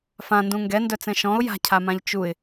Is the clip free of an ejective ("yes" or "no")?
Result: yes